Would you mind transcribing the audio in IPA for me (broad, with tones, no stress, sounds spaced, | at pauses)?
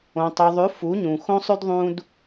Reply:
õ˨ tˤ ʉ˨ ðˤ ʉ˨˦ f u˨˦ ɲ ũ˨ x õ˦ sˤ ʉ˦ d ðˤ ũ˦ d